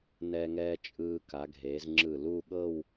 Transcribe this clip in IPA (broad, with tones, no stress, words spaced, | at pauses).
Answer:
nɛ˧ŋɛː˧ t͡ʃʼɯː˧ ka˩˧ɡʱeː˩˧zŋ͡ǁɯ˧˩ luː˥˧ɠɤ˥˧w